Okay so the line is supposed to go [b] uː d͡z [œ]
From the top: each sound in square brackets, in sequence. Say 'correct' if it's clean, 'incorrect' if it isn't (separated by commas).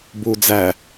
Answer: correct, incorrect